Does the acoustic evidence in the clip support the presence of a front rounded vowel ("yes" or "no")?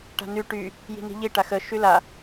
yes